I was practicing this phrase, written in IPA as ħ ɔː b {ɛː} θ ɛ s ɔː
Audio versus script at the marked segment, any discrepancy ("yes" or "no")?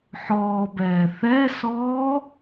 no